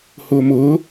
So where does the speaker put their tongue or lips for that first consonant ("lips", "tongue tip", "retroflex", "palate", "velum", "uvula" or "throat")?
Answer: throat